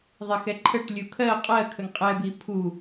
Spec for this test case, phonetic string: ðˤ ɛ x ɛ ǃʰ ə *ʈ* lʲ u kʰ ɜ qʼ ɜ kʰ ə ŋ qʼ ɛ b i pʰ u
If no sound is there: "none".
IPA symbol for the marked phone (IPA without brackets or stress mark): ʈ